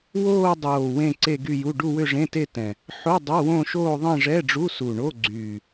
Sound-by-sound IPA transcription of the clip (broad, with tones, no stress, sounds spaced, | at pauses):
w oː˥˧ dˤ oː˨˩ w ẽ˥˧ ǀ e˥˧ ɡ y˥˧ j u˧˥˧ ɖ u˥˧ w ʏ˥˧ ʐ ẽ˧˥˧ t e˥˧ t ɛ̃˨˩ | ħ o˧˥˧ dˤ ø˧˥˧ w õ˥˧ ʃ oː˥˧ ðˤ ẽ˥˧ ʐ ɛ˧˥˧ ɖ͡ʐ u˧˥˧ s u˨˩ ɳ o˧˥˧ ɡ͡ǀ yː˨˩